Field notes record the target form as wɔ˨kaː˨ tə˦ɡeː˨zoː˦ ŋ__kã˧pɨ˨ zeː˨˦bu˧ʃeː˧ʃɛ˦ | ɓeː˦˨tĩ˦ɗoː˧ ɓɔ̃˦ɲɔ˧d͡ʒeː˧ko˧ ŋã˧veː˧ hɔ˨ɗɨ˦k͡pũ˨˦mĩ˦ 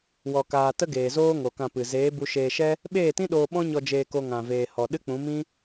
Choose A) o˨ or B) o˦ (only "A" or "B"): A